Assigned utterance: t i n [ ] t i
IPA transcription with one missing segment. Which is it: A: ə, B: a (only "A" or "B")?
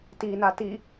B